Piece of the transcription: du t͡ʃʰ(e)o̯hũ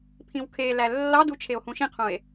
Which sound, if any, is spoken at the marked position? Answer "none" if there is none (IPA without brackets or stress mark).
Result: e